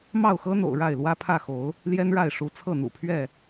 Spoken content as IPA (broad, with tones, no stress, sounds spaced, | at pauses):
m ɑ˥˨ ʊ̯ x ɤ˦ n̪ o̰˨˩ ʊ̯ ɻ a˥˨ ɪ̯ l w ä˦ pʰ ä˥˨ x o˨˦ ʊ̯ | l j ɛ˦ n ɻ a˥˨ ɪ̯ ʂ u˨˦ t͡sʰ ɤ˥˨ n̪ ṵ˨˩ pʰ ɥ ɛ˥˨